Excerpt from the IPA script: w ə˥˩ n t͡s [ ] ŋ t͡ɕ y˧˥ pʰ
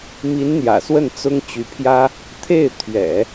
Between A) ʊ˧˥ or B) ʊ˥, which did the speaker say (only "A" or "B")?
B